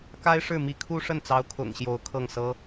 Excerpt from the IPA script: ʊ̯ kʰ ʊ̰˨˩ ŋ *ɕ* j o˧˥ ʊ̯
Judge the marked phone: correct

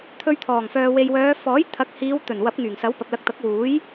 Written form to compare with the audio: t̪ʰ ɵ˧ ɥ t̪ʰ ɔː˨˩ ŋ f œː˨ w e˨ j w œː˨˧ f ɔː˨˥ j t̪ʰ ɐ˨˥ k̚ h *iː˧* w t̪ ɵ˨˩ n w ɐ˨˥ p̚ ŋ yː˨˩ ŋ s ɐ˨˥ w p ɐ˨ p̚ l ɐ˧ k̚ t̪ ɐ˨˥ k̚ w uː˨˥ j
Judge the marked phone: incorrect: iː˨˧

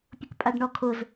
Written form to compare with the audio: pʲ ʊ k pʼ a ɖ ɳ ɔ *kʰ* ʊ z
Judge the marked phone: correct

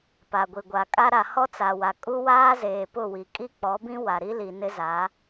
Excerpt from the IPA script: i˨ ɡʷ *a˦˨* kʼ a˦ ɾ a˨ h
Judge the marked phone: incorrect: a˨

